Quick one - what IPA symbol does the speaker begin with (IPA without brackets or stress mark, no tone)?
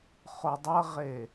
χ